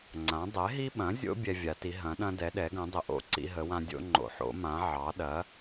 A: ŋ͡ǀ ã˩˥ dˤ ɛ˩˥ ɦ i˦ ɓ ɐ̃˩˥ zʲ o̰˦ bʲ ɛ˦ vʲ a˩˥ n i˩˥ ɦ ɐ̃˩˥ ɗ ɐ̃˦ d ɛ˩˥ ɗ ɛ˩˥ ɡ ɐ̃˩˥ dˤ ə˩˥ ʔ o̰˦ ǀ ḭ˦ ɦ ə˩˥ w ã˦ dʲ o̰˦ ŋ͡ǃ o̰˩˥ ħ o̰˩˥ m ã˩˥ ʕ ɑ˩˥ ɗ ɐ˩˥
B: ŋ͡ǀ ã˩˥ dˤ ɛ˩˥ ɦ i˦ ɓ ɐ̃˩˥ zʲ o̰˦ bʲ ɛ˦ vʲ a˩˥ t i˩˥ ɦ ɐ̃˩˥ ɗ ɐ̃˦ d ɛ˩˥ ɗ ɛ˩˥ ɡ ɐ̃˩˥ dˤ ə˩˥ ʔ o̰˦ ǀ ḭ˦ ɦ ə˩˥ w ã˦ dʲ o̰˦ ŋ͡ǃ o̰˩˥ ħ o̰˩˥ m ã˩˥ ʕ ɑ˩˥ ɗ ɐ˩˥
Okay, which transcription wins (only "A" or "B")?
B